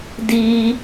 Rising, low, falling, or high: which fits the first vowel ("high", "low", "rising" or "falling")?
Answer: high